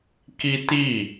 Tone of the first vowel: high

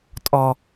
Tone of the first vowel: low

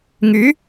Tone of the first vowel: rising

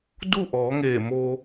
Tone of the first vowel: falling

